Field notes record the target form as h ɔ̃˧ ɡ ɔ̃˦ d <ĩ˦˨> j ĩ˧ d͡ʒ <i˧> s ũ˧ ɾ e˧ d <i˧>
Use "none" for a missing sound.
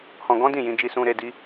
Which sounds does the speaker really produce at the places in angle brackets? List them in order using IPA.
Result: ĩ˦˨, i˧, i˦

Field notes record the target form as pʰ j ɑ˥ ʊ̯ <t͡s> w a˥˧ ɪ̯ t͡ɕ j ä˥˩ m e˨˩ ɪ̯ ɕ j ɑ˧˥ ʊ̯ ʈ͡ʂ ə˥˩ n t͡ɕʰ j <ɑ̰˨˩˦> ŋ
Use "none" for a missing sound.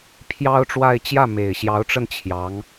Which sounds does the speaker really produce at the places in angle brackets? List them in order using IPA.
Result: ʈ͡ʂ, ɑ˧˥

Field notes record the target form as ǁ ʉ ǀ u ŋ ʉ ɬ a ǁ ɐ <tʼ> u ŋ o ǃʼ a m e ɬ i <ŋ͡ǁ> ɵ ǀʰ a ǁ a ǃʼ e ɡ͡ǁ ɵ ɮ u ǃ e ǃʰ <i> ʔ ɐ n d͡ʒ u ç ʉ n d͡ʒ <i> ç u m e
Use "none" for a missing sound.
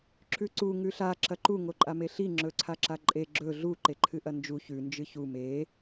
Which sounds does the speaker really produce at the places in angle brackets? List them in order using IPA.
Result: ǃ, ŋ͡ǁ, ɨ, ɨ

